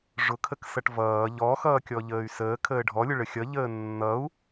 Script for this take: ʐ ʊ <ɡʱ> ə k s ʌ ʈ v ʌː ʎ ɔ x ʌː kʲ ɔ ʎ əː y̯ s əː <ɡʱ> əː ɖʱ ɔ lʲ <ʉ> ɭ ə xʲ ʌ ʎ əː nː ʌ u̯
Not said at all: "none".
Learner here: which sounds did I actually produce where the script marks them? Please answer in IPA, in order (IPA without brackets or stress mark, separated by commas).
kʰ, kʰ, ʊ